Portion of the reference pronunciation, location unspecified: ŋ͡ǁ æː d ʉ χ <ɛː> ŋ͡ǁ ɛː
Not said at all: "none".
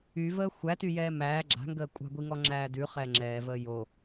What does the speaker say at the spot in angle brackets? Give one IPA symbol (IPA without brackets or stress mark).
ɛː